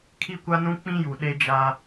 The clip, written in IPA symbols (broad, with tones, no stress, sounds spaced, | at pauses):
kʰ i˦ kʷ a˦ n ũ˦ k͡p ĩ˦ j u˨ ɗ e˦ d͡ʒ a˦